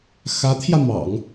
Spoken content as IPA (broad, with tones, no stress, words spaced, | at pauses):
xä˧˥t̪ʰjä˧ mɑ̰˨˩˦ŋ